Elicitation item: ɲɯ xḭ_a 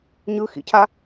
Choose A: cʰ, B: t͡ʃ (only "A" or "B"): A